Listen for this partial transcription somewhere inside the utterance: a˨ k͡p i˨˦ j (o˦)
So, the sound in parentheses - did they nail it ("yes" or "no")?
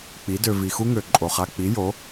no